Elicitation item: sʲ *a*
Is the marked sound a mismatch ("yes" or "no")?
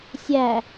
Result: yes